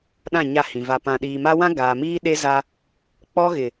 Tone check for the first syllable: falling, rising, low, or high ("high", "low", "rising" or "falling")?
falling